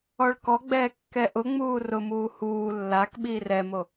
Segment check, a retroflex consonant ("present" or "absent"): present